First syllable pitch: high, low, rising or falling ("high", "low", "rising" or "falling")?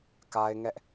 high